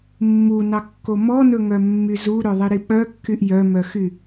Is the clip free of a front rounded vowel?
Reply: no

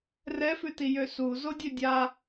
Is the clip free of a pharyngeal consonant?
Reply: yes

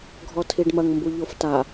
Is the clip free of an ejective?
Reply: yes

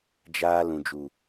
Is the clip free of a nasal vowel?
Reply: no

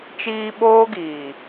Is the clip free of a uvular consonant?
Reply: yes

